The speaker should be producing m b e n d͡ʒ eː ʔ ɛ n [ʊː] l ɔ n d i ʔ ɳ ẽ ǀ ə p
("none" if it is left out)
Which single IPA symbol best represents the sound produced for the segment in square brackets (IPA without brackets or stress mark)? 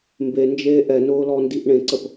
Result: ʊː